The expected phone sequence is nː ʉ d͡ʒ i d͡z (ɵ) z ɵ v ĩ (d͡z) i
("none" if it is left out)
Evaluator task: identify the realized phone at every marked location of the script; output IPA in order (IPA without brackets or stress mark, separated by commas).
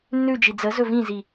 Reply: ə, z